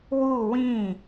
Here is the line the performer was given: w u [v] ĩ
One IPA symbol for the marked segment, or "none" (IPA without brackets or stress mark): w